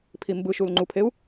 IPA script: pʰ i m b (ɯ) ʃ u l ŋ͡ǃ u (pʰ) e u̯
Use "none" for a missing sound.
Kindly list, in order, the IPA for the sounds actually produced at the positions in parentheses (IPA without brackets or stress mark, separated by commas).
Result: ɯ, pʰ